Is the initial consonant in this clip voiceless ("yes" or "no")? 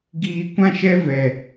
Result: no